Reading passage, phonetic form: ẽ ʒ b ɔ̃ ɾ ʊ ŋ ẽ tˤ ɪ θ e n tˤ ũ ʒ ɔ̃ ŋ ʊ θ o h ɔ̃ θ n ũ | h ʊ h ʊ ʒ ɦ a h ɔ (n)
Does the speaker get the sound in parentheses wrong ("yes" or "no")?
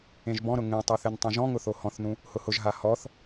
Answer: yes